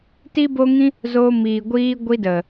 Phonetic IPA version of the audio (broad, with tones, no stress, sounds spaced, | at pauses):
t i˦ b o˦ ŋ ĩ˦ | z o˧ m iː˨ ɡʷ iː˧ ɡʷ i˧ d ə˨